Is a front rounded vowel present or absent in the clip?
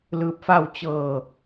absent